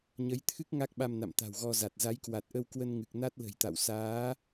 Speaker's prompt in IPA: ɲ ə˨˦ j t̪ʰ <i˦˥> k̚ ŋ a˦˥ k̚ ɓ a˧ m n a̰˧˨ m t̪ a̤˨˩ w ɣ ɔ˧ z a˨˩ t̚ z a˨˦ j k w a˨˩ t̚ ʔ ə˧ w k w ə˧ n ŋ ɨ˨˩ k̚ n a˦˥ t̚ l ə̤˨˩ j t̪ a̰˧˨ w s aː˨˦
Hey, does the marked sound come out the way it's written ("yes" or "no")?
no